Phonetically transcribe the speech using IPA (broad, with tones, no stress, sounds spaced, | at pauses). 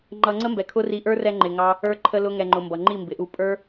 ŋ͡ǃ ʌ˧ ŋ͡ǀ ə˦ m b ɛ˨ kʰ ʊ˦ r i˧ ʔ ə˞˦ r ɛ˧ ŋ͡ǃ ɪ˨ ŋ ɑ˦ | ə˞˧ ǃʰ ə˧ l ʊ˧ ŋ ɛ˨ ŋ͡ǃ ʊ˨ m b ʌ˨ ŋ͡ǃ i˦˨ m b ɪ˨ ʔ u˧ pʼ ə˞˦